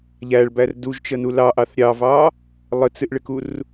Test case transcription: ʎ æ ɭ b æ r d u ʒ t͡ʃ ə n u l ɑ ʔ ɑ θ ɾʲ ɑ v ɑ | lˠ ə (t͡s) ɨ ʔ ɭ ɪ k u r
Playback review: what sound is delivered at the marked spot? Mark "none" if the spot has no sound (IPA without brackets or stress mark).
t͡s